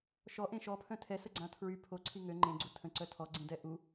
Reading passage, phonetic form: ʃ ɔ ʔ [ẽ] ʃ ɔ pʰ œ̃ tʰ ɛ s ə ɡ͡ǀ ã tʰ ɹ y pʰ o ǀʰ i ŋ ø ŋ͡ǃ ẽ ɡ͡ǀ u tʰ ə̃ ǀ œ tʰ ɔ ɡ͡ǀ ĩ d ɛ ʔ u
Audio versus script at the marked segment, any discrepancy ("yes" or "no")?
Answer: no